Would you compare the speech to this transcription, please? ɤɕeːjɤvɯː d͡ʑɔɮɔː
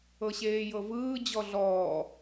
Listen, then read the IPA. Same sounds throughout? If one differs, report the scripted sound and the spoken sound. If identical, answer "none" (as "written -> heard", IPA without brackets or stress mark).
none